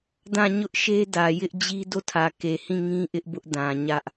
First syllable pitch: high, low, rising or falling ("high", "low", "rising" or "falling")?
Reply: falling